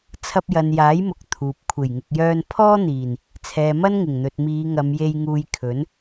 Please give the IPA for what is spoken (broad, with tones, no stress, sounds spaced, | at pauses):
t͡sʰ ɐ˧ p̚ j ɐ˨ n j aː˨˥ j m ʊ˨ k̚ t̪ʰ uː˨ p̚ kʷʰ e˨˩ j ŋ ɪ˨ k̚ j œː˧ n pʰ ɔː˥ n̪ iː˨˩ n | t͡sʰ ɛː˨ m ɐ˥ n ŋ ɪ˨˩ ŋ n̪ ɵ˨ t̚ m iː˨˧ ŋ ɐ˨˧ m j e˧ j ŋ uː˧ j kʰ ɵ˨˥ n